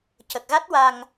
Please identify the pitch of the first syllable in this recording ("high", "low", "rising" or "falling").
low